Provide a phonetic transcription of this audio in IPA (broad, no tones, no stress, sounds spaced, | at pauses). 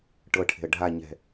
ʈ ɤ ʈʰ e̤ ə̯ ɖʱ a ɲ ɛ̤